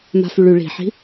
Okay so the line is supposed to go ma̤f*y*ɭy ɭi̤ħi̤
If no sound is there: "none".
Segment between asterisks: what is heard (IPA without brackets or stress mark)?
y